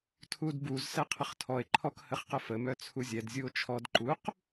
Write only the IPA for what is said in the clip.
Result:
tʰudbuz sɛqʰəχtʰɔe̯ ǃʰɔkhəχqəfə mœt͡sʰuzʲɛd zʲuo̯t͡ʃʰɔd ǃuq

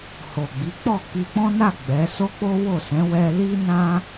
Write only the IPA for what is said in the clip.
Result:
ho˨ɡ͡bi˨˦k͡pɔ˦˨ ki˧k͡pɔ̃˦na˦˨ ɡ͡bɛ˨˦ so˦k͡po˦wo˦˨sɛ̃˨˦ wɛ˧li˦nã˦

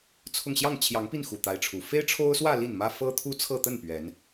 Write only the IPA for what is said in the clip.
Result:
t͡sʰʊ˥˧ŋ ɕjɑ˥˩ŋt͡ɕʰjɑ˧˥ŋpi˥˩nxu˨˩ t̪a˧˥ɪ̯ʈ͡ʂʰu˨˩ fe˥ɪ̯ʈ͡ʂʰo˥ʊ̯swä˥˧ li˥˩nmä˥ fɤ˥t̪ʰu˥t͡sʰɤ˥˧ t̪ə˥˩n pɥɛ˧˥n

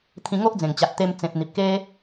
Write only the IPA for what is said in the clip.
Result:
t̪ʰĩ˧ŋo˦ʔd͡zẽ˨˩ŋ t͡ɕa˨t̚t̪e˧m t͡sẽ˨p̚n̪i˨p̚ ke˦

